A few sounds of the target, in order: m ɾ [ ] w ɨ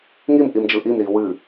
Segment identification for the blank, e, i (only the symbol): i